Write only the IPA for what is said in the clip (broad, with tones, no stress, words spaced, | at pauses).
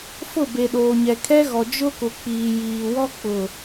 fʊ˦˨be˨ɗoː˨ɲɛ˨ kʰɛ˦ɣɔ˨ d͡ʒʊ˦kʊ˨ k͡piː˨ jiː˨wɔ˦ k͡pʊ˨